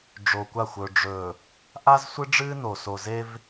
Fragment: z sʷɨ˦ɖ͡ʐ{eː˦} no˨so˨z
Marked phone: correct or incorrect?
incorrect